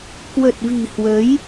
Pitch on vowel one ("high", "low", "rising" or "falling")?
low